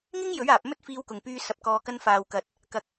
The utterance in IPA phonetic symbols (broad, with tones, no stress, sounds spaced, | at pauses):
ŋ ɪ˥ ŋ j ɵ˨˥ ɥ aː˨ p̚ m ɵ˥ t̚ f iː˧ w k ʊ˨ ŋ p yː˧ s ɐ˨˥ p̚ k ɔː˧ k ɐ˧ n f aː˨ w k ɐ˨ t̚ | k ɐ˨ k̚